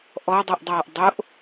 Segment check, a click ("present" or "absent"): absent